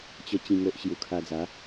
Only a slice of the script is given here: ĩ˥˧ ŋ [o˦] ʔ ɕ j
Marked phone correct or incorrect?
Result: correct